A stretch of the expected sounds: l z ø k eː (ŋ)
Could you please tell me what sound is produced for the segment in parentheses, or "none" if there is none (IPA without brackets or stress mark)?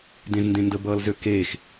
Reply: x